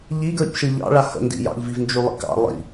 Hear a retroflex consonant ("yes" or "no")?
yes